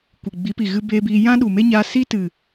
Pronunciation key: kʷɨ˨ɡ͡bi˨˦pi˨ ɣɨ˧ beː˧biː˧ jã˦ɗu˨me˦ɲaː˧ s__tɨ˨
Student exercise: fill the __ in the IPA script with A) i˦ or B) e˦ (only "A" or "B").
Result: A